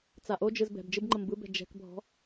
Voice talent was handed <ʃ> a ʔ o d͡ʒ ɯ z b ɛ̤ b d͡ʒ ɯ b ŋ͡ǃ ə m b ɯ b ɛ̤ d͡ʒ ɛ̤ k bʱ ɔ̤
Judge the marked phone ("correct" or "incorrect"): incorrect